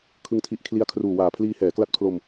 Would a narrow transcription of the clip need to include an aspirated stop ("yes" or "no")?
yes